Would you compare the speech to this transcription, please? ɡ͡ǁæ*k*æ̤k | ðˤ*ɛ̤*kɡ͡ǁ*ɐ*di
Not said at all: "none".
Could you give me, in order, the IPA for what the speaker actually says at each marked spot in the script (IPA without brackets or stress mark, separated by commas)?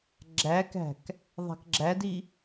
k, æ̤, æ